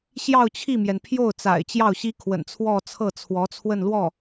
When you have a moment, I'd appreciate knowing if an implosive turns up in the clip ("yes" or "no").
no